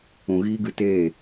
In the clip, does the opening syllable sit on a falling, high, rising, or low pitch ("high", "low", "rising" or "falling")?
low